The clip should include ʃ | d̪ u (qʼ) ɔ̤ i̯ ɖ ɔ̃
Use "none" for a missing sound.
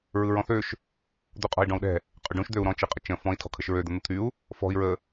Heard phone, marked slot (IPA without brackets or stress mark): qʼ